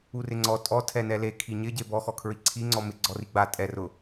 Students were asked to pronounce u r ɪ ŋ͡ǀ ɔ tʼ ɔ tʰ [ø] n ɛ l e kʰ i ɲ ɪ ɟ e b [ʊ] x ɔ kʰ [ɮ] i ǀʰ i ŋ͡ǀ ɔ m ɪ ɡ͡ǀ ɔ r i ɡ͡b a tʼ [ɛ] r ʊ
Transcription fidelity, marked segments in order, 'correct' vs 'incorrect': incorrect, incorrect, incorrect, correct

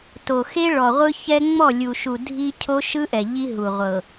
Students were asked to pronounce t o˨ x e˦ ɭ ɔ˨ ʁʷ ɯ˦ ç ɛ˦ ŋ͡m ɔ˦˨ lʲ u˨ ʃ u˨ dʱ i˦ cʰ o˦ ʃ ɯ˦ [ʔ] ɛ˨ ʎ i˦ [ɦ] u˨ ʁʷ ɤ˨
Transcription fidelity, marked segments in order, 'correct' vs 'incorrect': correct, correct

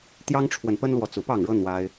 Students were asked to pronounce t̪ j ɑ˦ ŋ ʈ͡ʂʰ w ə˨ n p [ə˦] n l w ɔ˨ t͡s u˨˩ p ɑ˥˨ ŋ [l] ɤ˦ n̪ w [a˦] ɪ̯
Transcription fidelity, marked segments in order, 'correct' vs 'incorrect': correct, incorrect, correct

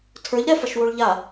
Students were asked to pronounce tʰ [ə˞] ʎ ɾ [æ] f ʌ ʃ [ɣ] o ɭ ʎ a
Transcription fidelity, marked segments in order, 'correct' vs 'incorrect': correct, incorrect, incorrect

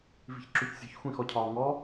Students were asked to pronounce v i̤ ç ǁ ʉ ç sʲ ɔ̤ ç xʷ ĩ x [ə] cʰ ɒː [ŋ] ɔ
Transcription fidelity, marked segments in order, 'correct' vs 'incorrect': incorrect, correct

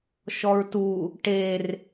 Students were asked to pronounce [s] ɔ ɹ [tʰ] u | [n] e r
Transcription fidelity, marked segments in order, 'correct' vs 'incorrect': incorrect, incorrect, incorrect

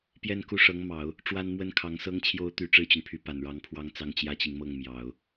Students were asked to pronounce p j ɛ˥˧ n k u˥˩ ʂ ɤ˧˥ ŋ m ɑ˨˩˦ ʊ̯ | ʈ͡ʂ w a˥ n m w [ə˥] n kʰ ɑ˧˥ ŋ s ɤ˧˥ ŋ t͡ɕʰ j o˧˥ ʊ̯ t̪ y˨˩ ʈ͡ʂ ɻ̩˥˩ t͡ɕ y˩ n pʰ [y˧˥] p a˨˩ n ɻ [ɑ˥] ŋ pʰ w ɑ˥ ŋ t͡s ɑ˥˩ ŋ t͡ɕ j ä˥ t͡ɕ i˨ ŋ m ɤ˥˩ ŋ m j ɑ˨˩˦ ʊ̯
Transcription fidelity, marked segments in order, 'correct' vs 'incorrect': correct, correct, incorrect

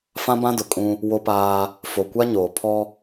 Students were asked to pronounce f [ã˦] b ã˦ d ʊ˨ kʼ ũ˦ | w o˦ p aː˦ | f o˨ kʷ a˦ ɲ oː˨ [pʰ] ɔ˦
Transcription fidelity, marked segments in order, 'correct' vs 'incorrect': correct, correct

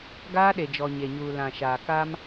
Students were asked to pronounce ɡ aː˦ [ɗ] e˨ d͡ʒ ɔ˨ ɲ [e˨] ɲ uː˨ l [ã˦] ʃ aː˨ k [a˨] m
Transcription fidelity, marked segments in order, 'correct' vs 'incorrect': correct, correct, incorrect, incorrect

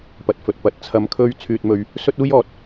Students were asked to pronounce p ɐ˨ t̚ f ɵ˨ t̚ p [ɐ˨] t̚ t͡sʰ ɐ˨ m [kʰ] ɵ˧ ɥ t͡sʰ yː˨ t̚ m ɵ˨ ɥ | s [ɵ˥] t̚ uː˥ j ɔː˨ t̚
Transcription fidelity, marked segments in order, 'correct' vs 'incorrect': incorrect, correct, correct

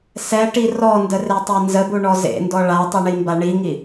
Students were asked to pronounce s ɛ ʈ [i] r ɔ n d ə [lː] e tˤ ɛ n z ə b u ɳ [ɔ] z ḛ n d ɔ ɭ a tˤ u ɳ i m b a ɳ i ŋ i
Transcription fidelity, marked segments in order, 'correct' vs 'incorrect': correct, incorrect, correct

